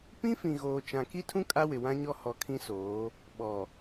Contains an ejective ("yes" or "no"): yes